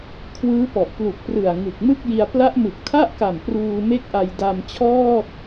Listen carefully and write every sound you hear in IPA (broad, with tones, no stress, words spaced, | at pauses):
kʰwɯː˦˥pɔ˨˩ʔplu˨˩k̚prɯ˨˩a̯ ŋɯ˨˩k̚mɯ˥˩k̚ji˧a̯ pla˦˥ʔmɯ˨˩k̚tʰa˥˩ʔka˨˩m pruː˧me˥˩k̚ʔa˧j da˧mt͡ɕʰɔː˥˩t̚